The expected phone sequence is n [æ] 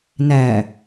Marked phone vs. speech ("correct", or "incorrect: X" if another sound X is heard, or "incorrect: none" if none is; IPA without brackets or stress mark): correct